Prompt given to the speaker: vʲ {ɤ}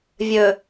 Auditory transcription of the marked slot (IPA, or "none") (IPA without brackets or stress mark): ɵ